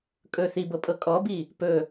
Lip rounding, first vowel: rounded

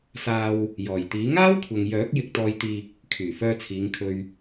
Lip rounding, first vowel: unrounded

